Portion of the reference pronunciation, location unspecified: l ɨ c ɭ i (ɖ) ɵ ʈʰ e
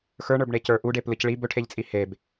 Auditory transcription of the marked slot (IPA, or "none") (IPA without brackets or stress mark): b